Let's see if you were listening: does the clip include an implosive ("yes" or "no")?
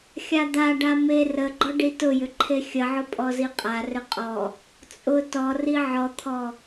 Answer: no